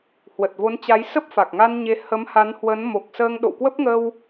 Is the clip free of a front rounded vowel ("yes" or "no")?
yes